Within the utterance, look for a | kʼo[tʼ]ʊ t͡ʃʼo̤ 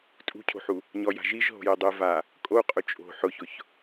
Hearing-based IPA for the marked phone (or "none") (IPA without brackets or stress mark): qʼ